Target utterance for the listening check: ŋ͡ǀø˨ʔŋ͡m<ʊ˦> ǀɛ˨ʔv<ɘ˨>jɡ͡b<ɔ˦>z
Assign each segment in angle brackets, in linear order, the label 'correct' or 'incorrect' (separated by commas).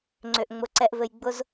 incorrect, correct, incorrect